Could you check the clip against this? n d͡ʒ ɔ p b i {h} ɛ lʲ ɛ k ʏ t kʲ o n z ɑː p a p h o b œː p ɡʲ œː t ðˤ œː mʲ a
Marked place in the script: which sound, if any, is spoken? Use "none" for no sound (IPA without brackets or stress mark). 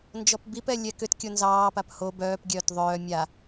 p